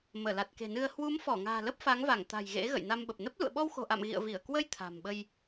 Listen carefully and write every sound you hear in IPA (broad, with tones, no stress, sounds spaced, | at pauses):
m əː˧˩ l a˨˩ t̚ k e̤˨˩ n ɨ˧ ə̯ h w u˨˦ m f ɔ˧˩ ŋ a̤ː˨˩ l ə˦˥ p̚ f a˨˦ ŋ v a˧˩ ŋ t̪ a̤˨˩ j ɣ ḛ˧˥ ɣ ə̰˧˨ j n a˧ m ɓ ə˨˩ p̚ n ə˦˥ p̚ l ṵ˧˨ ə̯ ɓ ɔ˧ w x o̤˨˩ ʔ a̰˧˨ m ɣ ḭ˧˨ ə̯ v i˧˩ ə̯ k w ə˧ j t̪ʰ a̤˨˩ m ɓ ə˧ j